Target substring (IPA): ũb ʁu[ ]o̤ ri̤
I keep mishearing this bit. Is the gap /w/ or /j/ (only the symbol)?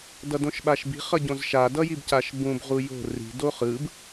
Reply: j